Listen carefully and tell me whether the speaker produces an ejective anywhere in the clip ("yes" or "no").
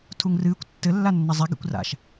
no